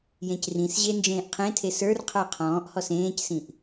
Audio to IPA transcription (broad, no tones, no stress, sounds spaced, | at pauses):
j ẽ c r ĩ s ʑ e n d͡ʒ ẽː ʔ qʰ ẽ tʰ e s ə˞ r qʰ ə˞ qʰ ɔ̃ː ʔ h ɔ s ẽː c s ĩ ʔ